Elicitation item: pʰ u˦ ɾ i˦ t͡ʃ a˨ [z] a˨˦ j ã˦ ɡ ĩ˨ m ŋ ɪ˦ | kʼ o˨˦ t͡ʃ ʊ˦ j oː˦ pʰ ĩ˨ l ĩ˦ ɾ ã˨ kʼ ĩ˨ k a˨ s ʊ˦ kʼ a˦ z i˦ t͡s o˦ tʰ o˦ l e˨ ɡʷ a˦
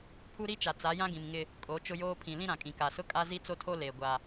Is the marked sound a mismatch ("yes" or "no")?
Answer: yes